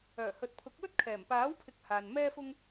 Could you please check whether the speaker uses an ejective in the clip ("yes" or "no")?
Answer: no